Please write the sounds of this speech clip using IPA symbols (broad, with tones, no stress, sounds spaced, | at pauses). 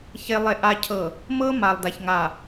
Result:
ç e˨ lˠ e˨ ʔ a˨ cʰ ɤ˨ | m ɤ˦ m a˨ lˠ d a˨ ç ŋ a˨